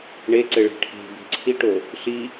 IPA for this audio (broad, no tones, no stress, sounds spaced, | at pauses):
ɳ e ǀ ɘ ɭ e̤ ʈʰ e̤ b e̤ ǀʰ i ʈ o | ɬ i